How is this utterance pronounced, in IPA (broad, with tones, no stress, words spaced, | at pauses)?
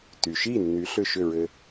ty˩ʃi˥˩ nːy˩˥ɬʏ˥˩ʃʏ˥˩ɹɘ˧